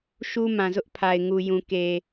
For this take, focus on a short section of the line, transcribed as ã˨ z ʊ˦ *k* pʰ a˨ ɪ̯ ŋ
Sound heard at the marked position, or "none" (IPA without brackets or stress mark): ʔ